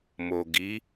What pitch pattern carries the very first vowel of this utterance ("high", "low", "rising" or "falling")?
low